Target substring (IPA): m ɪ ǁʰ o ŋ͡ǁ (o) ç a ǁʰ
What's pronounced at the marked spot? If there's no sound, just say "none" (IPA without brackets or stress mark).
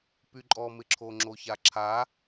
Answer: o